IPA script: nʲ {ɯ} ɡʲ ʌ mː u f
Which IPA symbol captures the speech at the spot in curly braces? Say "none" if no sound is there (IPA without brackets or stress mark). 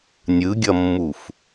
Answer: ɯ